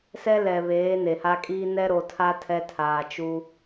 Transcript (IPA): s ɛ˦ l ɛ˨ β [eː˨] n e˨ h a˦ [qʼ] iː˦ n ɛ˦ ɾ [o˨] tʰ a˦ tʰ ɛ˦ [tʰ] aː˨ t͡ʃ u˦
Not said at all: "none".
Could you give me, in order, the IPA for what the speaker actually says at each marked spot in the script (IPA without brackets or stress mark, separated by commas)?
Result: eː˨˦, kʼ, o˨, tʰ